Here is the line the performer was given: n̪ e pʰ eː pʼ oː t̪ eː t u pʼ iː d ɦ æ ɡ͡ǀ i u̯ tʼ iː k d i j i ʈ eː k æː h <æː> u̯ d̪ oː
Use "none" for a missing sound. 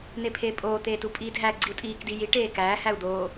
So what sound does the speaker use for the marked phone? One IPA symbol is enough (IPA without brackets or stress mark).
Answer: æ